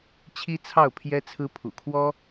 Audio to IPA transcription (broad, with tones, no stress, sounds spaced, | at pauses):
t͡ɕʰ i˥ t͡sʰ ɑ˥˩ ʊ̯ pʰ j ɛ˥ t͡sʰ ɹ̩˥ pʰ ṵ˨˩ kʰ w ɔ˥